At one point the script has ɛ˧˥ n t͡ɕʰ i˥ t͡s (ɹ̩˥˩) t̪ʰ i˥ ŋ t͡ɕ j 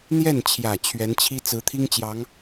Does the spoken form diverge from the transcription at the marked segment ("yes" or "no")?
yes